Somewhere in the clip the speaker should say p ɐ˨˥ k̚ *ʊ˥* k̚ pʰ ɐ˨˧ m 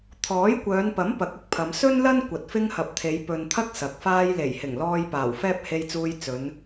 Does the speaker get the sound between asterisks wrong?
no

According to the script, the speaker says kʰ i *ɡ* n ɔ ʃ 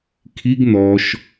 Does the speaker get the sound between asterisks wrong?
no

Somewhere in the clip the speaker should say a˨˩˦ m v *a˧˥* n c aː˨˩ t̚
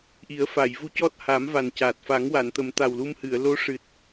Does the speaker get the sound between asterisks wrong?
yes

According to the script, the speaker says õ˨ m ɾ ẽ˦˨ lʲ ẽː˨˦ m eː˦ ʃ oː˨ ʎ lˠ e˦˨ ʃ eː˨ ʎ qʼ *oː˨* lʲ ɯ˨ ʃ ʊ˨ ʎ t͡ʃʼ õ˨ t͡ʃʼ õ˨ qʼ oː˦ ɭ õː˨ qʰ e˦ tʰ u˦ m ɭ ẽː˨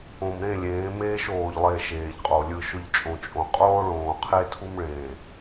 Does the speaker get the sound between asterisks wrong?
yes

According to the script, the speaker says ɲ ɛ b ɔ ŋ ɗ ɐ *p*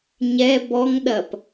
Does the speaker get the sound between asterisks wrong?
no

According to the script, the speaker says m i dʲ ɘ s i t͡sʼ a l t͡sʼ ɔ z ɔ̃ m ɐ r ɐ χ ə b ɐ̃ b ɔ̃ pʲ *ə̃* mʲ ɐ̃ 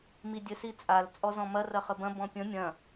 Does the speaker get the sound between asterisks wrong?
no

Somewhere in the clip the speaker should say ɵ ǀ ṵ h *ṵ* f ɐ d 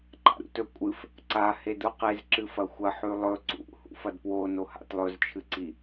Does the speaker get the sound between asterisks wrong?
no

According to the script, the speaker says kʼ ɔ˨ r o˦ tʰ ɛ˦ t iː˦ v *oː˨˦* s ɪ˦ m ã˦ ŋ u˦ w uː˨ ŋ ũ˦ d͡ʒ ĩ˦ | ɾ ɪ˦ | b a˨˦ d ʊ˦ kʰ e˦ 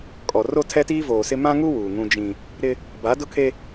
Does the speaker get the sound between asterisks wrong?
yes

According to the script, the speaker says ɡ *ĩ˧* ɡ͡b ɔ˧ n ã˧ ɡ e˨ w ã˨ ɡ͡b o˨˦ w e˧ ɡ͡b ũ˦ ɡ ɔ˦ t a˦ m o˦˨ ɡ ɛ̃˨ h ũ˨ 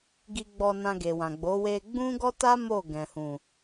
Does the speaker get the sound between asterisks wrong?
yes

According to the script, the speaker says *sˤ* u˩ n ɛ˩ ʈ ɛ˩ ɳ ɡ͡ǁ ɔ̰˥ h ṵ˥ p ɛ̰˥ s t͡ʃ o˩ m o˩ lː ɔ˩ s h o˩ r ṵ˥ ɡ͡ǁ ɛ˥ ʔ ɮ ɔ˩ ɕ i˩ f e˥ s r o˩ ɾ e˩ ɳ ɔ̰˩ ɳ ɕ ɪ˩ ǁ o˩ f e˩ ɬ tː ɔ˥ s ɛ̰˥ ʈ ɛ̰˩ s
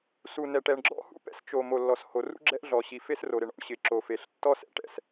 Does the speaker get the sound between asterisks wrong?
yes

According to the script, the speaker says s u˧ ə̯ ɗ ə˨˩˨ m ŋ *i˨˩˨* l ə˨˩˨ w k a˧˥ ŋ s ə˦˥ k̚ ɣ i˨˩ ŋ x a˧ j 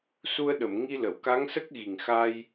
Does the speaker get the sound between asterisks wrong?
yes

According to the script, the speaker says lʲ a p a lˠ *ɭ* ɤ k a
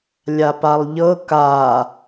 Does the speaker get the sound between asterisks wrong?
yes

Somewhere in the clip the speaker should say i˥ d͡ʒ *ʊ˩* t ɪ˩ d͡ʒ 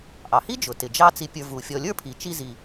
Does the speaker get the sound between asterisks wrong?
no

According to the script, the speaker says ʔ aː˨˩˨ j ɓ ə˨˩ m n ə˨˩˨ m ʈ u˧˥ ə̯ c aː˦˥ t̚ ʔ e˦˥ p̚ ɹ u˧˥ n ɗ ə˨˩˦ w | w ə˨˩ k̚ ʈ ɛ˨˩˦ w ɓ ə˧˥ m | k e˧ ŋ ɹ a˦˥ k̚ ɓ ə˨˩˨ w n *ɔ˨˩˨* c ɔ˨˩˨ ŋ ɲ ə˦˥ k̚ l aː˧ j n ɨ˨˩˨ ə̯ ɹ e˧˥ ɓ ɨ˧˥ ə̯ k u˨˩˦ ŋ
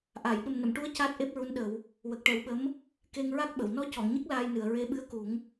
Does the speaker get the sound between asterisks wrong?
yes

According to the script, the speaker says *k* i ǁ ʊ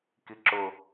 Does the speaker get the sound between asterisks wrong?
no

